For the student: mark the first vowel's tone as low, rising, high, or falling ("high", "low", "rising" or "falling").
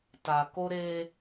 low